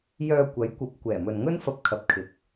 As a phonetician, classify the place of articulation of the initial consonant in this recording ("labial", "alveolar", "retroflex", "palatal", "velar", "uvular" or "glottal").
palatal